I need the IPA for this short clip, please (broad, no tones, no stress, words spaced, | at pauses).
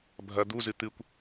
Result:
bʱɐ d̪uzɨ t̪ɨkʷ